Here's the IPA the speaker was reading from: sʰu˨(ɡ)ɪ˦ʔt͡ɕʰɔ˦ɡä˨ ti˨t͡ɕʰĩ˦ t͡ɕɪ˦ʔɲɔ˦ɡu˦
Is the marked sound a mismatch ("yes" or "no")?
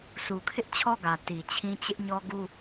yes